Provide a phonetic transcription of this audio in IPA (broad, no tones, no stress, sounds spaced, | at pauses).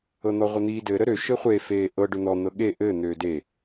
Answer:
ɤ n̪ ɔ ʁʷ ə n̪ iː d ɘ ɾ ə ɾ ø ʃ ɘ χʷ e f eː ʔ ɤ ɖ ø n̪ ɔ n̪ ɤ ɠ e ʔ ɘː n̪ øː d e